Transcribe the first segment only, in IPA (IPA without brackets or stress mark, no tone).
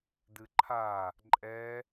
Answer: d